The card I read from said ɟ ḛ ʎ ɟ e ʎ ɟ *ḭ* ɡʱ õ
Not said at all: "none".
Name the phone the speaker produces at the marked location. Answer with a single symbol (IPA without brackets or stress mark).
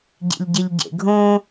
ḛ